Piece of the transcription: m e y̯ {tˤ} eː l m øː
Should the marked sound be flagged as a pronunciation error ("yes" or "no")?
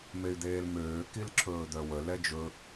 yes